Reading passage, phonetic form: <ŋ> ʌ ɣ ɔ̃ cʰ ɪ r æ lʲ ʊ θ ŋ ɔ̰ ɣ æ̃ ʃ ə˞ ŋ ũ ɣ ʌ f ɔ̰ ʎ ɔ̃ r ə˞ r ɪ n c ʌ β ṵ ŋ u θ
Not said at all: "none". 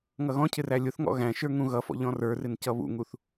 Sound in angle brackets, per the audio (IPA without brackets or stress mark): ŋ